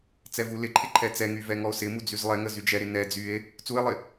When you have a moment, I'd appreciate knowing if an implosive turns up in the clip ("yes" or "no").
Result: no